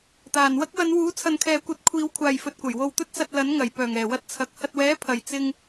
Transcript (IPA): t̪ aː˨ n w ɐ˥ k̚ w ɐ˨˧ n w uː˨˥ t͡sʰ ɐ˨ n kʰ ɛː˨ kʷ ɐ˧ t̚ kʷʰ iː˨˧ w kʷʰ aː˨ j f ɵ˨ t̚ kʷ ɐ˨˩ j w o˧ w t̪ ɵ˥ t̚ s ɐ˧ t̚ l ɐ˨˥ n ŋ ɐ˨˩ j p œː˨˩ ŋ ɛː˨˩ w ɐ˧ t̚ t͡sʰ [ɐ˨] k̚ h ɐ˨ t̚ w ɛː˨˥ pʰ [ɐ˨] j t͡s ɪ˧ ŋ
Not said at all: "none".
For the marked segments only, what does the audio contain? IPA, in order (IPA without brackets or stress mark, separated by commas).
ɐ˨˥, ɐ˨